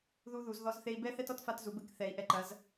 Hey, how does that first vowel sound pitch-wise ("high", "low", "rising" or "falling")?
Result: high